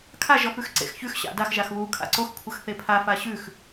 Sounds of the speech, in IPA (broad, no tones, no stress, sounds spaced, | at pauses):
kʰ a ʒ ɔ f ʉ x ǀ ḛ x ç ʉ x ɕ a̰ d a x ʒ a x β u kʰ a̰ ǀ o x kʷʰ ə x θ e pʰ a f a ɕ ʉ x